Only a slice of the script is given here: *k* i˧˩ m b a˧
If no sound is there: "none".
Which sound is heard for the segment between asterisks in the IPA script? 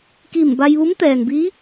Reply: k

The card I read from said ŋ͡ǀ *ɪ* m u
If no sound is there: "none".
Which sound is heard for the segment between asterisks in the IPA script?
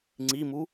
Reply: i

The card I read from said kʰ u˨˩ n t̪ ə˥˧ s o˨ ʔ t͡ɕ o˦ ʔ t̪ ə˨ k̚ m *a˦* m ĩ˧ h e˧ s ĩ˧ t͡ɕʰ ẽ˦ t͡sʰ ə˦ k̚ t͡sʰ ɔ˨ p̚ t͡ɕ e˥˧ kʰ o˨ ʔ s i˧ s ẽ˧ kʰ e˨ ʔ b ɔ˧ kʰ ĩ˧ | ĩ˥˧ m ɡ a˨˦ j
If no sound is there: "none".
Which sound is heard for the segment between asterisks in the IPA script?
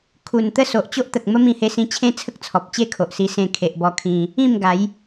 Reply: ə˦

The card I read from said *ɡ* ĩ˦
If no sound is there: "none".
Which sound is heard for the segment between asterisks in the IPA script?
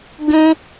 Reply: ɡ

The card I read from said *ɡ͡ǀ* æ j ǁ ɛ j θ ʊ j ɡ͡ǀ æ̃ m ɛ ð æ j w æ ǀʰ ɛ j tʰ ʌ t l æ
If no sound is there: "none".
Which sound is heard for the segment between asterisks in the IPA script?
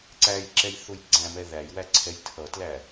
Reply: ǀ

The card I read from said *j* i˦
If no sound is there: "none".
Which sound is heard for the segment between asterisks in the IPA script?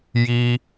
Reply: j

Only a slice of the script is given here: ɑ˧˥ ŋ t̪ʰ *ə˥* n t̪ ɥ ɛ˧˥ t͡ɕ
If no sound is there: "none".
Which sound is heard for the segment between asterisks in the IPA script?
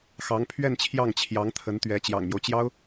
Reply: ə˧˥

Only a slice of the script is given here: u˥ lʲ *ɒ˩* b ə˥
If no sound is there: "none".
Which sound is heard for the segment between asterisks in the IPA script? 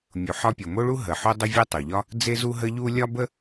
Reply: ɒ˥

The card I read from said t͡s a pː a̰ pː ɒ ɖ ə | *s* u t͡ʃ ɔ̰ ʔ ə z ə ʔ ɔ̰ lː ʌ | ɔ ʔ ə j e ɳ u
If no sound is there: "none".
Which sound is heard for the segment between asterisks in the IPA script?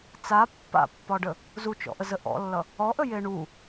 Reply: z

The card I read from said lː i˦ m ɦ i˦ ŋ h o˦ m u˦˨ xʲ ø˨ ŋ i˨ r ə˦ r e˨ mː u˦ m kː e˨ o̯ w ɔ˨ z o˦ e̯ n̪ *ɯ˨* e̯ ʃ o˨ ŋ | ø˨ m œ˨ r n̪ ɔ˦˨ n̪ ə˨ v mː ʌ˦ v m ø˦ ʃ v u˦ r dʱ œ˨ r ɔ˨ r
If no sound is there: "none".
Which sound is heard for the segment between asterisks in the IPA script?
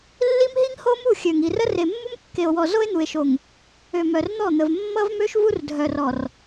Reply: u˨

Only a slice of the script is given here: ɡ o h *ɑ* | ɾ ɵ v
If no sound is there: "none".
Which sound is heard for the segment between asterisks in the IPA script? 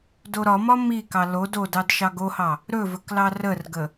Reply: ɑ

